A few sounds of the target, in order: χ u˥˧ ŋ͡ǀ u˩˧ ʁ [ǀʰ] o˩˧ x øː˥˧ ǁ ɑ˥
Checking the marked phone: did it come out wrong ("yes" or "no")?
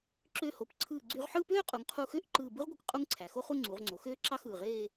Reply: yes